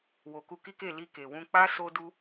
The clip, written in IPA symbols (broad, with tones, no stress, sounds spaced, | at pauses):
w o˨ k u˧ k i˦ k e˦˨ l i˧ k e˨ w ũ˧ k͡p a˦ s o˦ d u˦